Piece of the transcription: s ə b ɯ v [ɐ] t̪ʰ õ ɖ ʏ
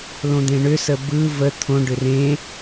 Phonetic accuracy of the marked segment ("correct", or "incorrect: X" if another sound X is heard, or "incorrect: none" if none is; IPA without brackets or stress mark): incorrect: ə